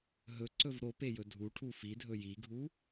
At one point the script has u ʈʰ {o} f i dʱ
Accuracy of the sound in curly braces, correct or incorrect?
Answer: incorrect